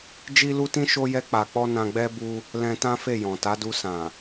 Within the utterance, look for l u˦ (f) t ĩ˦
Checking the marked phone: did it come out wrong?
yes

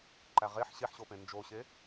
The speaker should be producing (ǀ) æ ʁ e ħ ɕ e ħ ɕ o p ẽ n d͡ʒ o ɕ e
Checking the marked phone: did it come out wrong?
yes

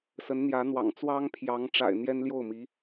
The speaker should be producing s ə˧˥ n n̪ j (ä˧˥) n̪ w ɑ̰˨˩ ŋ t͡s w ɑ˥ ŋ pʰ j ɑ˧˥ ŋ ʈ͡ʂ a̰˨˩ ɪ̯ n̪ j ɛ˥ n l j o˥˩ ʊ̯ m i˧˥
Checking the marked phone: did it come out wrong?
no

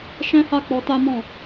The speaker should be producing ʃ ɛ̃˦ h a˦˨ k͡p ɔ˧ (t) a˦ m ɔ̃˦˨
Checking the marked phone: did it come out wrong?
no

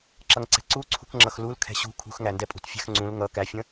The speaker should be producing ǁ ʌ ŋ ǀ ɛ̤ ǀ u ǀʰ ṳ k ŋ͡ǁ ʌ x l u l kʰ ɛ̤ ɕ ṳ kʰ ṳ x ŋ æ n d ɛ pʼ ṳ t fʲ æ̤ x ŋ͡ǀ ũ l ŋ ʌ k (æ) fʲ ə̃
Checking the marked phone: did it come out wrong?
no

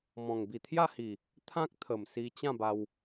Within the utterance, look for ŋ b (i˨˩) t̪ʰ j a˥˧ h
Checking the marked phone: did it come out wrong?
no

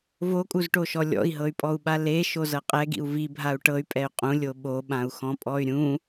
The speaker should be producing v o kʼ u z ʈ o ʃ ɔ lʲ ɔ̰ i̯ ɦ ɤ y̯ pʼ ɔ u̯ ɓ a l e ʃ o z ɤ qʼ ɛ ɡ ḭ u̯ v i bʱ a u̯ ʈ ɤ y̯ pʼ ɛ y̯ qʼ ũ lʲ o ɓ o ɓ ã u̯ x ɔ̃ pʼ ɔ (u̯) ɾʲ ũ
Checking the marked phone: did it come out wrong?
yes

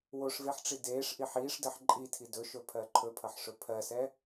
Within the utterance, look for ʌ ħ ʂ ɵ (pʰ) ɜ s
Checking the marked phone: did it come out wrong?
no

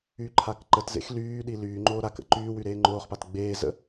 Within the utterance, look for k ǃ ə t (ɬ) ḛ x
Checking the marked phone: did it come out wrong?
yes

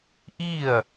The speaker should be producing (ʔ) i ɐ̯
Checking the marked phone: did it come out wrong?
no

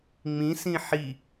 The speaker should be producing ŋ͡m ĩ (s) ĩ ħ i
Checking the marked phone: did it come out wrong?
no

